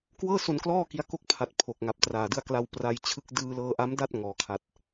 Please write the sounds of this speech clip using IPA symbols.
k w ɤː˥˩ s o˧ n k l ɔː˥˩ k i˦˥ a̯ k o˥˩ k̚ pʰ a˨˩ t̚ pʰ o˨˩ k̚ ŋ a˨˩ p̚ t r aː˨˩ d ɯ˧ a̯ k l a˧ w p r a˧ j t͡ɕʰ ɯ˥˩ k̚ d ɯː˧ l ɤː˧ ʔ a˦˥ m d a˥˩ t̚ ŋ ɔː˩˦ kʰ a˨˩ t̚

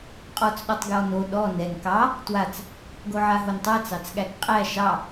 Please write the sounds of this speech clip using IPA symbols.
qʼ ɔ t͡s ɗ ɔ tˤ ɡ j ɔ n o ɗ ɔ n ɛ n k ɑ | t w a t͡s | ɡ o ʕ a ɦ o n tˤ a t͡s ɑ t͡s ɠ æ k qʼ æ ʃ ɑ

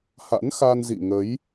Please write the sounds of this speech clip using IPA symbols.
h a̰˧˥ n x a˧ n z ḭ˧˨ ŋ ə˨˦ j

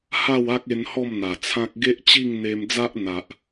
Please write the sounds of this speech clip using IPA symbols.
h a˥˧ w a˦ k̚ e˧ n h ɔ˥˧ m n̪ a˨˩ t͡sʰ ã˦ k̚ ɡ e˦ ʔ t͡ɕ i˥˧ ŋ n̪ e˧ m d͡z a˦ ʔ n̪ a˨ ʔ

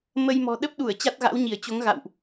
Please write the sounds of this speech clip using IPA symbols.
m ə˧ j m ɔ̤˨˩ ɗ ə˦˥ p̚ ɗ u˧˩ ə̯ t͡ɕ a˦˥ t̚ ɣ a̰˧˥ w ɲ i˧˩ ə̯ t͡ɕ o˨˦ ŋ ɣ a̰˧˨ w ʔ

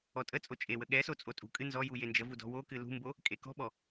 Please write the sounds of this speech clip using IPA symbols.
ɔ tʼ ə t͡sʼ o t͡ʃʼ e w ə ɠ ɛ s o t͡sʼ o tʼ ṳ kʼ ɨ n z ɔ j u j e n d͡ʒ ə v u d ɔ̤ w o k ɨ l ṳ m b o | kʼ e k ɔ̤ ɓ ɔ

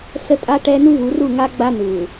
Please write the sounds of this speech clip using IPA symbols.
s ə˦ tʼ a˦ ʈ ɛ˦ n u˦ v u˨˦ r u˦˨ ŋ a˦ ɡ͡b a˦ n u˨

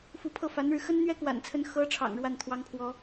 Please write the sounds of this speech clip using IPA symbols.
f u˧˥ pʰ ɤ˥˩ f a˧˥ n ɻ ɻ̩˧ x ə˥ n n̪ ɥ ɛ˥ k w a̰˨˩ n t͡sʰ ə˧˥ n x ɤ˧˥ ʈ͡ʂʰ ɑ̰˨˩ ŋ ɻ w a˥˩ n t̪ʰ w ɑ˧˥ ŋ pʰ w ɔ˧˥

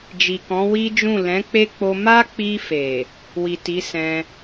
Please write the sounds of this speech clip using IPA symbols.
d͡ʒ i˨ k ɔ̃˨˦ w i˦ d͡ʒ ũ˦˨ l ɛ̃˨˦ k͡p e˦ k͡p o˧ m a˦ k͡p i˧ f e˨ | w i˨ t i˨˦ s ɛ̃˧

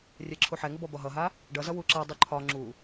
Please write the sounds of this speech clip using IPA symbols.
rʲ ɛ ǁʰ u ħ ɛ ŋ ə b ɔ b ɒ ɦ ʌ ɦ a | ɖ ʌ z ʌ w u ǁ a dˤ u ǃʰ ɒ ŋ͡ǁ u

